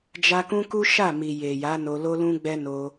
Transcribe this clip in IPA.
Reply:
d͡ʒ a˧ k ũ˦ k u˦ ʃ a˦˨ m i˨ j e˨ j a˨˦ n o˧ l o˦ l ũ˦ ɡ͡b ɛ˦ n o˧

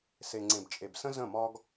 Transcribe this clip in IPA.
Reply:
s e˨ ŋ͡ǀ ẽ˨ b t͡ʃʼ e˨ b s ə̃˦ z ə̃˦˨ m ɒ˦ ɡ

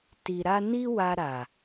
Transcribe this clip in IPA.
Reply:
t i˨ ɾ a˧ n i˦ w a˧ ɾ a˨

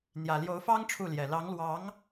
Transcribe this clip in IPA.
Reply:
n̪ j ä˨˩ l j o˧˥ ʊ̯ f ɑ˥ ŋ ʈ͡ʂʰ u˥˩ l j ɛ˨˩ l ɑ˧˥ ŋ l w ɑ˧˥ ŋ

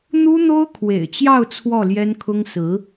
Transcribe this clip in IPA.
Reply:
n̪ u˥ n̪ o˥ ʊ̯ kʰ w ḛ˨˩ ɪ̯ t͡ɕ j ɑ˥˧ ʊ̯ t͡sʰ w ɔ˥˩ l j ɛ˥ n kʰ ʊ˥ ŋ s ɹ̩˧˥

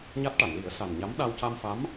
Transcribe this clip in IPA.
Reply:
ɲ a˦˥ t̚ ʈ a˨˩˨ n l i˨˩˦ ə̯ s a˨˩ n ɲ a˧˥ m ɗ a˧ w c a˧ m f a˧˥ m

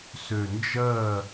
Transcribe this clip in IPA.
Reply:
s ø˨˩ n d͡ʒ ɜ˥˨

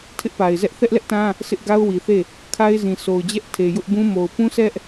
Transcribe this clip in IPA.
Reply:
tʰ ɪ˦ ʔ p a˨ ɪ̯ z ɛ˦ ʔ θ ɛ˦ ʔ l ɛ˦ ʔ t ã˦ | sʰ ɪ˦ ʔ ɡ a˦ ʊ̯ w i˨ θ e˦˨ | kʰ a˦ ɪ̯ z ĩ˨ s o˨ ʊ̯ d͡ʑ ɛ˦ ʔ tʰ e˨ j ʊ˦ ʔ b ũ˦ m o˨ ʊ̯ p ũ˦ sʰ ɛ˦ ʔ

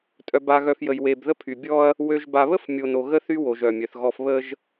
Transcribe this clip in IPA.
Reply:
tʼ œ˨ b a˨ ɣ œ˨ f j ə˨ j w e˨ b ð ə˦ pʰ y˨ bʲ ɔ˦ ɐ̯ | w ø˨ ʒ b a˨ β ə˦ f mʲ o˨ n o˨ ɣ ə˦ θ y˦ w o˨ ʒ œ˨ mʲ œ˨ θ ɣ ɔ˦ f β ə˦ ʒ

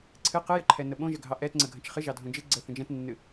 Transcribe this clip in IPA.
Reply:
ǀʰ ɨ q ɨ j ə ǃʰ ɛ n ə ɓ õ ʒ ə ɡʱ ɑ ʔ ɛ t ŋ͡ǀ ə ɡʱ ə̃ t͡ʃ χ ɨ ʒ ɑ dʱ õ d͡ʒ ɨ ɡ͡ǀ ə θ ə̃ d͡ʒ ɛ̃ t nː ɨ

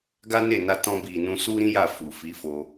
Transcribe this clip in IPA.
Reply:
ɡ a˦ n e˦˨ n a˧ t ɔ̃˧ b i˨ n ũ˧ s u˦ ɾ ĩ˦ j a˦˨ f u˨ f i˨˦ f o˧

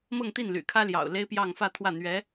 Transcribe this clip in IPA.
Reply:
m ɤ˥˧ ŋ t̪ i˥˩ n l y̰˨˩ kʰ ä˥ l j ɑ̰˨˩ ʊ̯ l e˥ ɪ̯ p j ɑ˥˧ ŋ f ä˥˧ t̪ʰ w ä˥˩ n̪ ɥ ɛ˧˥

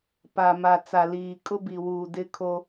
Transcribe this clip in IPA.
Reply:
p a˨ m a˨ t͡s a˨ l iː˨ kʼ ʊ˦ b i˨ w uː˨ d ɪ˦ kʰ o˦

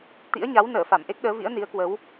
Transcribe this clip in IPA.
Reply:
t̪ ḭ˧˥ ə̯ ɲ a˨˦ w n əː˧˩ f a˧˩ m ʔ e˦˥ k̚ ɗ əː˨˦ v ḭ˧˥ ə̯ n i˨˦ ə̯ k w ə˨˦ w

